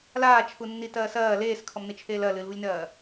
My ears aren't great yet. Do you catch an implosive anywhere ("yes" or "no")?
no